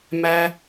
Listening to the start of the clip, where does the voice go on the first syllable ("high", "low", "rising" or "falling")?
high